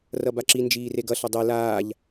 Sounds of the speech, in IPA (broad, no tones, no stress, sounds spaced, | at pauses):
r ʌ b a ǁ i n d͡ʒ iː r e ɡ ʌ ɬ ʌ dˤ e l aː ʎ